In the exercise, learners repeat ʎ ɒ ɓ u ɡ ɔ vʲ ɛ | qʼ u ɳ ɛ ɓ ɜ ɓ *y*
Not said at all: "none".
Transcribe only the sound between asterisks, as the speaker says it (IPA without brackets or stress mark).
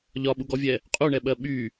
y